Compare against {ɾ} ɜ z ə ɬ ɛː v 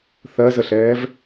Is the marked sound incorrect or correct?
incorrect